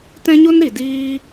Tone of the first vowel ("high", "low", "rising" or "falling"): high